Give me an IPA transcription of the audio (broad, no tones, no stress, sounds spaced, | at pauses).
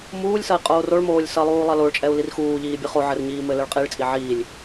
m uː lʲ s ɐ i̯ qʼ oː r o ɭ m oː lʲ s ɐ lˠ uː lˠ ɐ l o ɭ t͡ʃʼ ɛ u̯ l i r x uː ʎ iː bʲ ɨ χ o ʕ ɘ r ɲ iː m ɘ l ɘ ɭ qʼ i ɭ t͡sʼ i ʕ iː lʲ